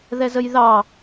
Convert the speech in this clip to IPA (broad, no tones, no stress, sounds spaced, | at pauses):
ð ɛ z ə j ð ɑ